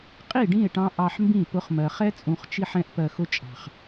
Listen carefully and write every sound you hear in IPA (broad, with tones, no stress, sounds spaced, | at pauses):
qʼ i˦˨ ɖ ĩ˦˨ e̯ ʈ ɑ̃˧ ʔ ɑ˧ ħ m b ĩ˦˨ p ʊ˧ χ m ɜ˨ χ ɛ˦ t͡sʼ ũ˨ χ t͡ʃ i˧ ħ ɛ̃˦ ʔ p ɜ˧ x ʊ˦ t͡ʃʼ ɑ̤˨ χ